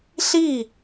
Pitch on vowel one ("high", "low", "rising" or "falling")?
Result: falling